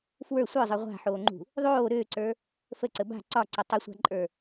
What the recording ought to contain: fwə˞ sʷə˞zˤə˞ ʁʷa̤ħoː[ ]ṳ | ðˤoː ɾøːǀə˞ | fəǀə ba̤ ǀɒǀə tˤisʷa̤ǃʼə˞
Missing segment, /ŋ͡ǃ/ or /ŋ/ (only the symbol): ŋ͡ǃ